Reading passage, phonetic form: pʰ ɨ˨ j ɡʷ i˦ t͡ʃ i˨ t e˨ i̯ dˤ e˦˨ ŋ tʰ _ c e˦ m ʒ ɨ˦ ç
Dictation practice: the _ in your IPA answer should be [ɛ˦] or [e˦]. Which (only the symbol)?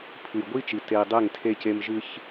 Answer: e˦